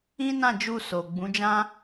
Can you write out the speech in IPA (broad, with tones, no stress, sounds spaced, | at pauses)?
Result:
ĩ˦ n ã˦˨ d͡ʒ u˧ s o˨ ɡ͡b ũ˨˦ d͡ʒ ã˦